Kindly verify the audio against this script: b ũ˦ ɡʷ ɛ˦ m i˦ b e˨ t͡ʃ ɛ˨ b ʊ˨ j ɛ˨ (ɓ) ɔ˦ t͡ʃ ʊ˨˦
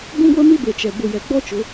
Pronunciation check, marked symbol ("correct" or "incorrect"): incorrect